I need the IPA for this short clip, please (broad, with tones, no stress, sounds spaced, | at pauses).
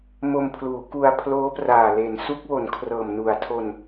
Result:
m o˧ m pʰ l uː˩˦ k u˧ a̯ pʰ l oː˦˥ p r aː˨˩ l e˩˦ n s u˦˥ k̚ w o˩˦ n kʰ r ɤː˨˩ m n u˨˩ a̯ tʰ o˧ n